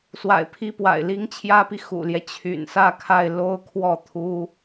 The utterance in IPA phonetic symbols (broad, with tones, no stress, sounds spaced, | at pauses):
s w a̰˨˩ ɪ̯ pʰ i˥˩ p w a̰˨˩ ɪ̯ l i˥ ŋ t͡ɕʰ j ä˥ p i˨ x ṵ˨˩ l j ɛ˦ t͡ɕʰ y̰˨˩ n s ä˥˧ kʰ a˥˩ ɪ̯ l o˥ ʊ̯ kʰ w ɔ˥˩ t̪ʰ u˥